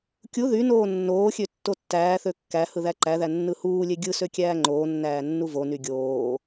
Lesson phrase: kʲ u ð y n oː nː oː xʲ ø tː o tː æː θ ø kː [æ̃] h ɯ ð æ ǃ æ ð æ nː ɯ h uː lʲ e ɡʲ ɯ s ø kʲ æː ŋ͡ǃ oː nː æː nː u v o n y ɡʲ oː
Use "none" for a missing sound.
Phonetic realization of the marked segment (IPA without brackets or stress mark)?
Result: æ